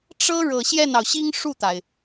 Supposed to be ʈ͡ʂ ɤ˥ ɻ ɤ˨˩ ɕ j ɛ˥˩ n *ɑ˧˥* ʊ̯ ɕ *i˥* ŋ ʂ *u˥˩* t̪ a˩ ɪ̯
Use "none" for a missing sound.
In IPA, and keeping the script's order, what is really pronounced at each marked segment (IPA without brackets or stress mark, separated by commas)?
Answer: ɑ˩, i˥, u˥˩